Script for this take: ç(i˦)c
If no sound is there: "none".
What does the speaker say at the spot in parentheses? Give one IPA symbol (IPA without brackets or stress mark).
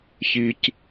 i˨